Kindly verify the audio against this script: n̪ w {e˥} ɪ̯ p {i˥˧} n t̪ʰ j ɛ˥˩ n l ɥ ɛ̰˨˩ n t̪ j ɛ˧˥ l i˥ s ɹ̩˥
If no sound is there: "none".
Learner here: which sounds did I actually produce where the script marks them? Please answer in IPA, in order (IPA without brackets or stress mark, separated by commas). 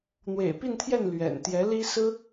ḛ˨˩, i˥˧